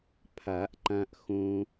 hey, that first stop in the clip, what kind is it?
aspirated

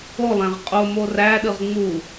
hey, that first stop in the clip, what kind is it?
ejective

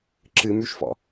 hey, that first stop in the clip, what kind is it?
click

